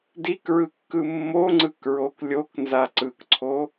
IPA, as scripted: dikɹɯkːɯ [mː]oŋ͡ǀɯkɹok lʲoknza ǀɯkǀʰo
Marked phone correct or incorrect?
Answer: correct